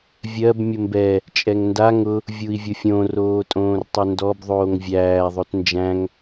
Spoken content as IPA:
vʲ ɜ b mʲ ʊ m b ɛ | t͡ʃʼ ɛ ŋ n d a ŋ ʊ | vʲ u i̯ vʲ ʊ fʲ õ r oː tʼ õː r tˤ ʊ n d ɔ b ðˤ oː ŋ vʲ æː ðˤ o t n d͡ʒ æ̃ ŋ

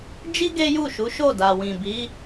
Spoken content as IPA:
d͡ʒ i˦ ɡ e˦ j u˦˨ ʃ u˨˦ ʃ o˦˨ d a˨ w ĩ˨ b i˨˦

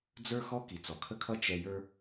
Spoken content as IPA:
d͡z ə˞˦ x ɔ˦ k i˨ t͡s ɔ˨ kʰ ə˦ kʰ ʌ˦ t͡ʃ ɛ˧ j ə˞˦

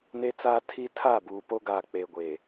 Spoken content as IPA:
n e˦ t͡s aː˦ tʰ i˦ tʰ a˦˨ b uː˨ p o˦ ɡ a˨ k͡p e˨ ɡʷ e˨

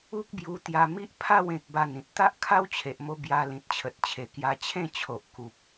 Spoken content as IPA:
u˦ k̚ b j u˧ t̪ j a˧ m i˦ ʔ pʰ a˥˧ w ẽ˨ k̚ b a˥˧ n ĩ˨ t̚ t̪ a˦ ʔ kʰ a˦ w t͡ɕʰ e˨ ʔ m o˧ b j a˧ l ĩ˨ t̚ t͡ɕʰ ə˨ t̚ t͡ɕʰ e˨˩ k j a˧ t͡ɕʰ ẽ˥˧ t͡ɕʰ o˨ ʔ k u˨ p̚

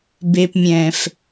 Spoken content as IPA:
b e˨ p mʲ ɛ̃ː˨ f

